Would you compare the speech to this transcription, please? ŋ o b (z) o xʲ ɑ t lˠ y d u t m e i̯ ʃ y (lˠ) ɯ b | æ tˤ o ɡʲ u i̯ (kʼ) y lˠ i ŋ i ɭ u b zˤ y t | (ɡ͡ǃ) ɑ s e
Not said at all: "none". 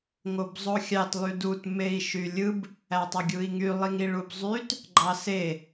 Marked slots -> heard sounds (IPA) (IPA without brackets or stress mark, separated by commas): zˤ, lʲ, ŋ, ɡ͡ǃ